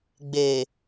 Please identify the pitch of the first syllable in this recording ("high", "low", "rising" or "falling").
low